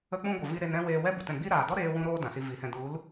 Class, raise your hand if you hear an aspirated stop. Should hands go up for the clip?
no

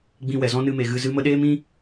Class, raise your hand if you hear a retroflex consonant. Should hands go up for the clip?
no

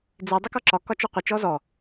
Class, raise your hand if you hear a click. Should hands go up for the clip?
yes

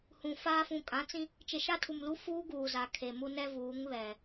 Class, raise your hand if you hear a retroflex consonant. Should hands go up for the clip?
no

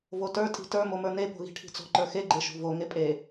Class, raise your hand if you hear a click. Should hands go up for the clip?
yes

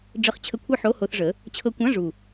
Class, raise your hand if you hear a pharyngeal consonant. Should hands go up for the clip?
yes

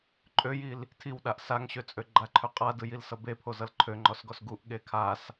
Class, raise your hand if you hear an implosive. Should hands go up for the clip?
yes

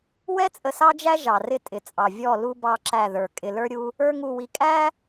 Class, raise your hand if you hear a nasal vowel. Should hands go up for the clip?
no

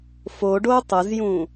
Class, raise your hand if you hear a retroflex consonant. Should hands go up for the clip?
yes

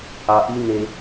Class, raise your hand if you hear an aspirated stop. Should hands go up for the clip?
no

